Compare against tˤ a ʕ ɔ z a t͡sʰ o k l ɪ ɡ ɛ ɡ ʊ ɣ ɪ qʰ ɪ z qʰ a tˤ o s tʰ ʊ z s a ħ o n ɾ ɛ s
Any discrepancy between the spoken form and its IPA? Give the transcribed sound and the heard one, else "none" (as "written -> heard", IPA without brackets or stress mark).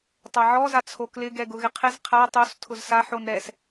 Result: none